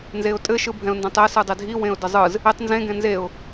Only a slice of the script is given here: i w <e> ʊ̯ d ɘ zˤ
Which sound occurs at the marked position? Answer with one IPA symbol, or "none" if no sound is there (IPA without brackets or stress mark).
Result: ẽ